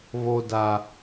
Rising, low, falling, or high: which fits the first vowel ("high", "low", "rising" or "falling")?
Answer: high